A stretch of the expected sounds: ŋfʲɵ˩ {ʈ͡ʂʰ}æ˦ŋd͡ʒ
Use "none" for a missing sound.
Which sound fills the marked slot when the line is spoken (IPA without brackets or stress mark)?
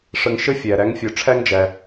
ʈ͡ʂʰ